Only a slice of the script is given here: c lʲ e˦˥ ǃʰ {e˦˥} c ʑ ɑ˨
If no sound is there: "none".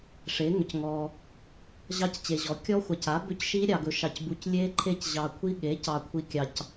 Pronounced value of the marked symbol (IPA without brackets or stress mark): e˦˥